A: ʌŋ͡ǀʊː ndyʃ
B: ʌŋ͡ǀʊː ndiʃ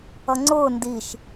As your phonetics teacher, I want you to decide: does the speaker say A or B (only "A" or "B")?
B